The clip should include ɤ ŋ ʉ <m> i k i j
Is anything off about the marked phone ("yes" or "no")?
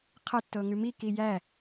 no